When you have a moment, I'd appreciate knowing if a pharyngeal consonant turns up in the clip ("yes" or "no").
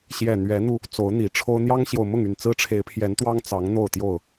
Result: no